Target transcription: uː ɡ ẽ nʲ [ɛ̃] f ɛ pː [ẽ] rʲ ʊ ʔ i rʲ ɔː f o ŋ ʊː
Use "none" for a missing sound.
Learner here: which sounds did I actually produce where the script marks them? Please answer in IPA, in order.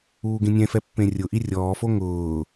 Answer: ɛ̃, ẽ

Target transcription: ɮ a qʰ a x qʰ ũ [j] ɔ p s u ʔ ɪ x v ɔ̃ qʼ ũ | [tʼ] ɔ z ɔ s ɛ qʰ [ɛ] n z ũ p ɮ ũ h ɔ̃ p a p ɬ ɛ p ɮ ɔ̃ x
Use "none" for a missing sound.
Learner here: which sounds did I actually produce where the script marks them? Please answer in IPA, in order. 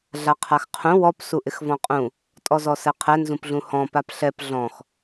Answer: w, tʼ, ɛ

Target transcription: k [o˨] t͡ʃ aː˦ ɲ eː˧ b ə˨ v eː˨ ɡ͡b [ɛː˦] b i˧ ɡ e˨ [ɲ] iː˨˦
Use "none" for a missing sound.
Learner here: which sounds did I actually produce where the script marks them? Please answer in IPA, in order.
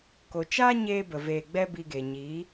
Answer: o˨, ɛ˦, ɲ

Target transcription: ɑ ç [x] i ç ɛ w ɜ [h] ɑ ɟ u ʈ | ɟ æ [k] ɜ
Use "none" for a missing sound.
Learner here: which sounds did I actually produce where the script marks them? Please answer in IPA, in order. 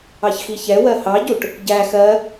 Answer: x, h, x

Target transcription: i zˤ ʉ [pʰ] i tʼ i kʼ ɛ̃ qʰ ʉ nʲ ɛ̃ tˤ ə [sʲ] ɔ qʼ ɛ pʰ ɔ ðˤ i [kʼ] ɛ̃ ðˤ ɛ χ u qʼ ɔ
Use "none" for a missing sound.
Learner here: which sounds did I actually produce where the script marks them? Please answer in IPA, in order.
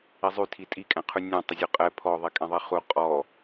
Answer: tʰ, zʲ, kʼ

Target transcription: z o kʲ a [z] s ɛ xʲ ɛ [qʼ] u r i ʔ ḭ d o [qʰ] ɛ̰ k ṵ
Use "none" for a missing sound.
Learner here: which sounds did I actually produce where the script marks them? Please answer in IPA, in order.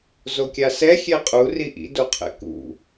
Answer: none, qʼ, qʰ

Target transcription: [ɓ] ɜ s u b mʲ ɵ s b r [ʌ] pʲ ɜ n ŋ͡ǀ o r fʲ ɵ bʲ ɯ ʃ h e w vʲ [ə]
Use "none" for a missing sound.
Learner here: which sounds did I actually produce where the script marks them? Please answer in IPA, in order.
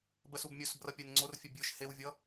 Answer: b, ʌ, ʌ

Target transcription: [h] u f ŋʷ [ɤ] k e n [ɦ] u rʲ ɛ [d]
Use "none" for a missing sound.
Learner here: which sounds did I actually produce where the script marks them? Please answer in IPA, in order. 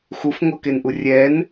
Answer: x, ɤ, ʔ, n

